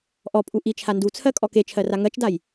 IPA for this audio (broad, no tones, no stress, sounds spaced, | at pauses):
ʔ ɔ pʼ u ʔ i t͡ʃʰ a n d u t͡sʰ ɜ kʼ ɔ k e t͡ʃʰ ɜ r a ŋ ɜ t͡ʃ d a j